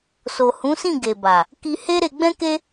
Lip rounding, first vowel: rounded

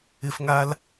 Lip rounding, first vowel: unrounded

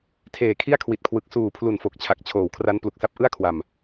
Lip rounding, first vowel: unrounded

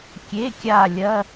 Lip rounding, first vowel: unrounded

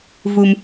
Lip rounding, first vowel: rounded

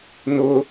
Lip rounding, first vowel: rounded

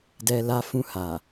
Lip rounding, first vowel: unrounded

